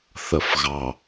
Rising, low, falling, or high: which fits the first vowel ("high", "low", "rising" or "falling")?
low